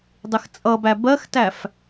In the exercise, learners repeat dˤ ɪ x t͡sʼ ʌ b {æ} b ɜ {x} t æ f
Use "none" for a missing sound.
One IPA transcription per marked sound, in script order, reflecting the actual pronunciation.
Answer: æ, x

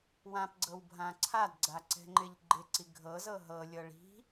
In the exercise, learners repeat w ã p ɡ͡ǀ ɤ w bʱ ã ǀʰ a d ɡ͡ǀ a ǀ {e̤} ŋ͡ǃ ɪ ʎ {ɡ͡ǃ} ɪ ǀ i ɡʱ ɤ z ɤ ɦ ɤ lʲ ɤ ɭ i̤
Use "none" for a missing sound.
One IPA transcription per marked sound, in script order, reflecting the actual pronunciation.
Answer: ɛ̤, ɡ͡ǃ

